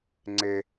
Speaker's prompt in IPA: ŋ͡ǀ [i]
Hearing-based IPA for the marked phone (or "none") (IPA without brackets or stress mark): e